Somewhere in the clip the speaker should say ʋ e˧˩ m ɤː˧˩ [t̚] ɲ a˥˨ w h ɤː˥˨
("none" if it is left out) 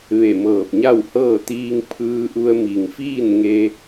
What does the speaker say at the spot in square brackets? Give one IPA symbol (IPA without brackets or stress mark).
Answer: p̚